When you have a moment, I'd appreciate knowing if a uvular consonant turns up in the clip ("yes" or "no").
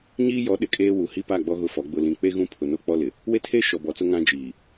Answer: no